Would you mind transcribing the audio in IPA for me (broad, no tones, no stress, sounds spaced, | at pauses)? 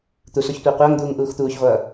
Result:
t̪ u s o ç tʷ ʌː qʷ ʌː ŋ d̪ uː ŋ ʔ uː x t̪ uː ç ʁʷ ʌː